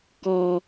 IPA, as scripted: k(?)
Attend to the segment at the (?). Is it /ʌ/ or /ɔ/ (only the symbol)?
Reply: ɔ